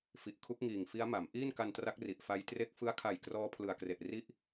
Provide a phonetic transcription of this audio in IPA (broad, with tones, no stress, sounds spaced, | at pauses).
f i˨˩ ʔ kʰ u˦˥ k̚ ŋ iː˨˩ ŋ f i˦˥ a̯ m a˩˦ m ʔ iː˥˩ n k a˧ n t r a˦˥ k̚ r i˨˩ ʔ f a˦˥ j t r e˥˩ k̚ f ɯ˦˥ a̯ kʰ a˨˩ j k r ɔː˦˥ pʰ l ɯ˨˩ a̯ k r e˨˩ ʔ r i˥˩ ʔ